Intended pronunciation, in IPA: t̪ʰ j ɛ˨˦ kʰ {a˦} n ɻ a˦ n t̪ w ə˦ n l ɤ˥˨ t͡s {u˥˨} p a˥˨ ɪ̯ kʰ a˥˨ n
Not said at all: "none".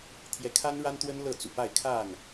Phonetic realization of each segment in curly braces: a˦, ṵ˨˩

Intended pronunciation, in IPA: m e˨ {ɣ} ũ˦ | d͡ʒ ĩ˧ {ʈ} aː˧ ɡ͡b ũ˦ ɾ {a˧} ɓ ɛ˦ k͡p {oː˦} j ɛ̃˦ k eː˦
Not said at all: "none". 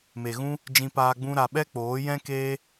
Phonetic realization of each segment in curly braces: ɣ, p, a˧, oː˨˦

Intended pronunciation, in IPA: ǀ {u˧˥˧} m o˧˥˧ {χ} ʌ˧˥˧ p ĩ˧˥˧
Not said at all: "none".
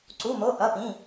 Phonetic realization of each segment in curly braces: u˧˥˧, ʔ

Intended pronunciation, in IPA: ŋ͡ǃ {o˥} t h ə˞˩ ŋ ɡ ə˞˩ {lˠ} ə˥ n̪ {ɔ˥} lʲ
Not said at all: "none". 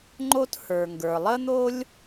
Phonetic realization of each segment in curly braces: o˥, lˠ, o˥

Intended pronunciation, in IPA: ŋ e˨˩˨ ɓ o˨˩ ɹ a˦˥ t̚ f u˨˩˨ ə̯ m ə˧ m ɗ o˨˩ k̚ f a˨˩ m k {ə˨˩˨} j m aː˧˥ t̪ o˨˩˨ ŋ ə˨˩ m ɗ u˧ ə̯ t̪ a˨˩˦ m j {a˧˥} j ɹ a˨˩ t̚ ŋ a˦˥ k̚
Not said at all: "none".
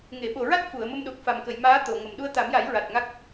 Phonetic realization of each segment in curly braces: ə˨˩˨, a˨˩˦

